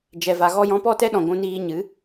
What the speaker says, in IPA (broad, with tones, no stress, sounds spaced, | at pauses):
d͡ʒ ɛ˨ v a˨ ɣ ɔ˧ j ɔ̃˨˦ p ɔ˦˨ t ɛ˦ ɗ ɔ̃˨ ɡʷ ũ˧ n iː˧ ɲ ɨ˨˦